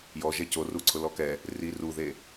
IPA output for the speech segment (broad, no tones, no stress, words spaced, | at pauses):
jɔ ʒɛcoruǀʰʊ lɔkɛ | ri ruðe